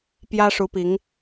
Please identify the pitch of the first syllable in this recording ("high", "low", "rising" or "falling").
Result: high